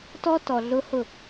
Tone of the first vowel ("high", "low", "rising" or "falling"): high